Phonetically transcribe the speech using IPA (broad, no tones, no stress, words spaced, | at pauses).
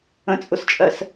ə̃t͡sʼʊst͡ʃʼɜs